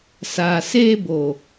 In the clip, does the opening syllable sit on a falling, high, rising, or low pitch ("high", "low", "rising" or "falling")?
low